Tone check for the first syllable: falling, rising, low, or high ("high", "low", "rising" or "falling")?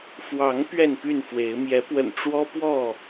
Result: rising